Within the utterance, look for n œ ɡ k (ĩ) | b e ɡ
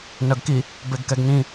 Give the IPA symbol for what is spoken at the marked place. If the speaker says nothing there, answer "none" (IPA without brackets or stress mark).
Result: i